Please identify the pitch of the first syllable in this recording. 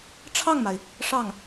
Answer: falling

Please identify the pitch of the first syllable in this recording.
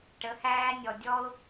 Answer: rising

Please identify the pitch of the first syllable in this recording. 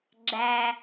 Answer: low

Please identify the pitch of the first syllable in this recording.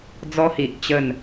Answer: high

